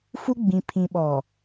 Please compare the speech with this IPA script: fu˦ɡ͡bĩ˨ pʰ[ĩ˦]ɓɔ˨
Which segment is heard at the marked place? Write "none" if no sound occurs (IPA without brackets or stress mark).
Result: ĩ˨